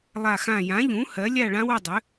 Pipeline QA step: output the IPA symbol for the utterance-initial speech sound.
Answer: lˠ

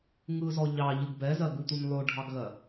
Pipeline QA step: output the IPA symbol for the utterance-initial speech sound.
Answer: ŋ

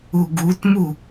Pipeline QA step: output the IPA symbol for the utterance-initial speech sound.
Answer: u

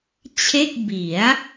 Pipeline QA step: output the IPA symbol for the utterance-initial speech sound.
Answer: t͡ɕʰ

